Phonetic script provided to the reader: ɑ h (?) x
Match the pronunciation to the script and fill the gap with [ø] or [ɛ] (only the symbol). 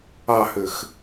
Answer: ø